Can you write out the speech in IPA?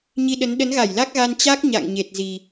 ɲ i˧ ɗ ə˨˦ n ɗ ə˨˦ n ɣ a˧˩ j l a˦˥ k̚ ɣ a˧ n t͡ɕ a˦˥ k̚ ɲ a̰˧˨ ŋ ɲ e˨˩ t̚ z i˨˩

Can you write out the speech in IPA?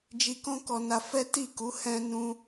d͡ʒ i˧ k ɔ̃˦ k ɔ˧ n a˧ f ɛ˦ t i˦˨ k u˨˦ h ɛ̃˦ n ũ˦

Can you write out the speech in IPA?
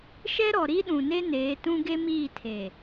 ʃ ɛ˦ ɾ ɔ˨ ɾ i˦ ɗ ũ˨ n e˦ n eː˨˦ t ũ˦ ɡ e˦ m iː˦˨ tʰ eː˨

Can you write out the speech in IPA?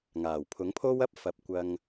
ŋ aː˨˩ w pʰ ʊ˨˥ ŋ pʰ o˥ w ɐ˥ p̚ f ɐ˨˥ p̚ kʷ ɐ˧ ŋ

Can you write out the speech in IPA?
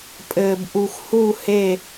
pʼ ɘː˧ b ʔ u˧ x h u˥˧ h e˥˧

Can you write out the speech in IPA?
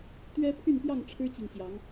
t̪ ɥ ɛ˦ pʰ y˥˨ n p j ɑ˥˨ ŋ ʈ͡ʂʰ ɻ̩˦ t͡ɕ i˨ ŋ ɕ j ɑ˨˦ ŋ

